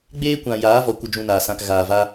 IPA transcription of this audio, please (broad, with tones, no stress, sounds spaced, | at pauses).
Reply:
ɡ͡b eː˦ kʷ ã˨ j aː˨˦ v ɔ˨ kʷ ə˦ d͡ʒ ũ˧ n aː˨ s ã˧ k ɣ aː˨ v a˦